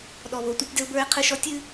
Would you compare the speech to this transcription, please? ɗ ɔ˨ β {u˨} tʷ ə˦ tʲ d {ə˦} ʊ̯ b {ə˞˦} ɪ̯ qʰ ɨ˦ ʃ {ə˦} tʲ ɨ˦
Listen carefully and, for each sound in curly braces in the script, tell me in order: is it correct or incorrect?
incorrect: o˨, correct, correct, incorrect: ɔ˦

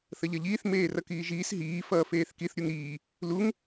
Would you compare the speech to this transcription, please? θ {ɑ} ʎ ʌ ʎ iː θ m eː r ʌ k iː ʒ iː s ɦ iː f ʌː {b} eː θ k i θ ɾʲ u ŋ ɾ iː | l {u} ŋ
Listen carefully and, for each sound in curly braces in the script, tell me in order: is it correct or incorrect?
incorrect: ʌ, incorrect: f, correct

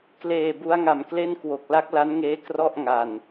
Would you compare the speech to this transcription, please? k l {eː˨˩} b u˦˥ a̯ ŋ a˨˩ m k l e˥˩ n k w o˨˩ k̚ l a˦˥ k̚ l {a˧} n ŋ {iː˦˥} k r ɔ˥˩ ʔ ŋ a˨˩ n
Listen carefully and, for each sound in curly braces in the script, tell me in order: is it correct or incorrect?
correct, incorrect: a˦˥, incorrect: eː˦˥

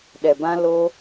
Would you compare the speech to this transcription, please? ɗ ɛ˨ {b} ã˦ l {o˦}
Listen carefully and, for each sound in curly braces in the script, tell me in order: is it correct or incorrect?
correct, correct

